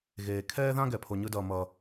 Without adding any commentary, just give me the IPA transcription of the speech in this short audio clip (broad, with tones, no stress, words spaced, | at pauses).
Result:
ɣeː˩ kʰɛː˥ðã˥ ɡɛ˩pʰo˩ ɲɯ˨dʌː˩ mʌ˩